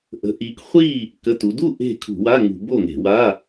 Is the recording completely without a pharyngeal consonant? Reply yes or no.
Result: yes